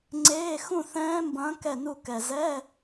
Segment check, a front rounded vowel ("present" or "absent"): absent